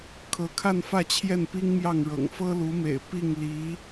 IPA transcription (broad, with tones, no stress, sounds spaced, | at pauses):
kʰ ɤ˧˥ kʰ a˥˧ n f ä˥˧ t͡ɕʰ j ɛ˥˩ n p i˥ ŋ m j ɑ˥˩ ŋ ɻ ɤ̰˨˩ ŋ f ɤ˥ l u˧˥ m ḛ˨˩ ɪ̯ p i˥˩ ŋ l i˧˥